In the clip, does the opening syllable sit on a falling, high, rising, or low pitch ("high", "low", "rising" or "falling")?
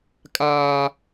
high